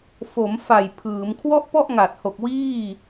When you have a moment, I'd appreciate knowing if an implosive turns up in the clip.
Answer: no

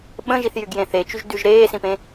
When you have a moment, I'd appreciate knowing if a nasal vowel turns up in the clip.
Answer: yes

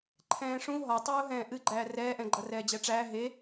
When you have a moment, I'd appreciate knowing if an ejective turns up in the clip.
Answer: no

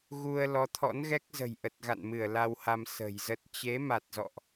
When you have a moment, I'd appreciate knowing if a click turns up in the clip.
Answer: no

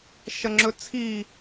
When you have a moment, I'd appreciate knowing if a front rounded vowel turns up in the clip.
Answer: no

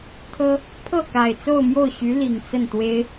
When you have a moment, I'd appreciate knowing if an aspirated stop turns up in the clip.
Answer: yes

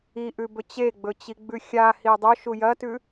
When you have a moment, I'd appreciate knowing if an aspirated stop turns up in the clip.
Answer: no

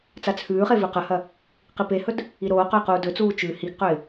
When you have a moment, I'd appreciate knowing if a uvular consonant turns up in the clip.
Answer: yes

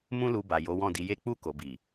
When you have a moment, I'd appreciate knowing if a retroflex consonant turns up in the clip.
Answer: no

